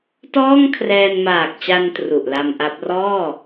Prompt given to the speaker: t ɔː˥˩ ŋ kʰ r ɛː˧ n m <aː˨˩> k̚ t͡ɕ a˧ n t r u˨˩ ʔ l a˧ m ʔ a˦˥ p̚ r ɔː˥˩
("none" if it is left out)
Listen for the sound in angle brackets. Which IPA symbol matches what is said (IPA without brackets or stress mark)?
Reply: aː˨˩